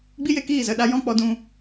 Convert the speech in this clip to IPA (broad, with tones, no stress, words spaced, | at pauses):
ɡ͡bi˦je˧ kiː˦˨ zə˨ɗa˦ jɔ̃˦k͡pɔ˧dũ˧